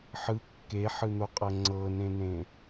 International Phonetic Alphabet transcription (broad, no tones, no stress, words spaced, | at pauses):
ħɯ kːeħɯn̪oqʼɤ ŋ͡ǀɤnẽnẽ